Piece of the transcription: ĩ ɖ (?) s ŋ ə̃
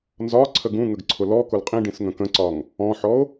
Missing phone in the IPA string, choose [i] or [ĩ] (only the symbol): ĩ